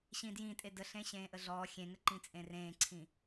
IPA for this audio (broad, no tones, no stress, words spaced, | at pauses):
ɕĩdjĩ tʼedəɬẽ ɕẽːʔəɮɔː xʲẽŋəǃĩ t͡sʼẽrẽːǀʰĩ